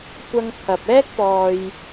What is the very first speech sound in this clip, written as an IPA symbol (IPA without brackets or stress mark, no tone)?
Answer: kʷ